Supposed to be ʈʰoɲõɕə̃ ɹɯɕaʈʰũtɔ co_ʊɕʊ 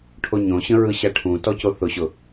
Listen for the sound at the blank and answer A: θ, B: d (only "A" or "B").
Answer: A